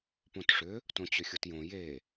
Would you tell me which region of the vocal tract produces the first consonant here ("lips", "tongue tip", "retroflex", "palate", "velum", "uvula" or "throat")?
lips